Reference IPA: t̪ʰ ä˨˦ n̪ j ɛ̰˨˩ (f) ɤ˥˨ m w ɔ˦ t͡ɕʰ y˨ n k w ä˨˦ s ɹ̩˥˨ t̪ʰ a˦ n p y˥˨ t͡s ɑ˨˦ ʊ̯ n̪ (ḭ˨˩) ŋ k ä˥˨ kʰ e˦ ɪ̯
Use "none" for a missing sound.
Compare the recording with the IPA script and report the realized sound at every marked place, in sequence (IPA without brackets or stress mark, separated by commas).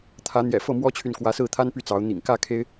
f, ḭ˨˩